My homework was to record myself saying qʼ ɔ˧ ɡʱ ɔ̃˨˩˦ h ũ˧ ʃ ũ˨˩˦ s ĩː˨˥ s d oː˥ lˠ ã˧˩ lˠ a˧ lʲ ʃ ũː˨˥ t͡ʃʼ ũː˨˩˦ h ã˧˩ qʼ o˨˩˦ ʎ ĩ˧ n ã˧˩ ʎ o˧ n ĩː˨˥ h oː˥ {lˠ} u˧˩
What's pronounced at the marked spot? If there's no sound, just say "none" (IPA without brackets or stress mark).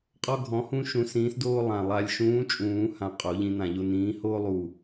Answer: lˠ